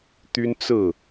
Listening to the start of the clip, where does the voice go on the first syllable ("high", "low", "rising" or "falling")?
high